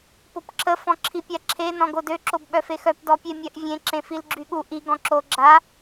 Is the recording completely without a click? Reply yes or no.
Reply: no